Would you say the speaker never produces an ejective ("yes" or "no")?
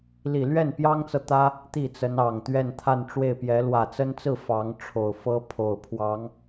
yes